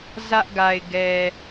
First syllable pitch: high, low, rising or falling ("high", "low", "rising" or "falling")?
high